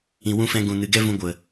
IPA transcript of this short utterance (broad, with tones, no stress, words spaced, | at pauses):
ĩ˨wũ˧fɛ̃˧ ɡũ˨nɨ˨ɡɛ˦ vũ˧ɡʷə˨